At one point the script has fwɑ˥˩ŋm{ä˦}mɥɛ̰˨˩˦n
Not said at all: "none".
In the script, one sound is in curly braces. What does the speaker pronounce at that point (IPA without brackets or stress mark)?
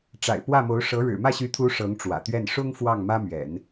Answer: ä˥